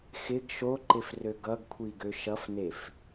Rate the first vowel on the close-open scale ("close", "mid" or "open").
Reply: close